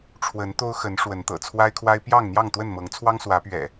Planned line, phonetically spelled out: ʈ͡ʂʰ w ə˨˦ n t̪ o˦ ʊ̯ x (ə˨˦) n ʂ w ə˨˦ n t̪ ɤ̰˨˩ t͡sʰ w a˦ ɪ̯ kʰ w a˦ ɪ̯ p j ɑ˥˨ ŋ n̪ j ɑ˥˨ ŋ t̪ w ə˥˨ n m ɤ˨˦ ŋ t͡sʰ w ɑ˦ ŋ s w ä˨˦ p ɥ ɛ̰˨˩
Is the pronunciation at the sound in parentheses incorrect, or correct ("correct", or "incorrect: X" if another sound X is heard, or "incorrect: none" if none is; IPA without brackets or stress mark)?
correct